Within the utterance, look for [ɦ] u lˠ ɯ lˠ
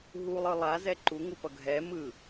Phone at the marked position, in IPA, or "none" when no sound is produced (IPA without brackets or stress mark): ɦ